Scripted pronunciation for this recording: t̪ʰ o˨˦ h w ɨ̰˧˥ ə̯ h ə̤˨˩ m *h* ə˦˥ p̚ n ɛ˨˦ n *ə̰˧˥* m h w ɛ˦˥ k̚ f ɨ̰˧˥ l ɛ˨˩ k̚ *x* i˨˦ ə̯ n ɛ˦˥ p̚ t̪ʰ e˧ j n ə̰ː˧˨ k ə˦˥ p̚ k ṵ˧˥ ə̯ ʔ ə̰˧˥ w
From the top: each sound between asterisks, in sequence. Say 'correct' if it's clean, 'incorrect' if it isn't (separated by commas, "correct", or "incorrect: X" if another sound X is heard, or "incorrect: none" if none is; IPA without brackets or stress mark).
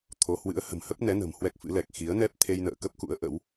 correct, incorrect: ə̤˨˩, correct